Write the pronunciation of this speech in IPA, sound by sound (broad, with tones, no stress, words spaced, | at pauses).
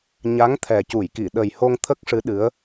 ɲa˧˥ŋt̪ʰɛ˨˩ cu˨˩˨jki˨˩˨ ɗə˨˩jho˧ŋ t̪ʰə˦˥k̚ʂɨ˧˥ɗɨ˧˥ə̯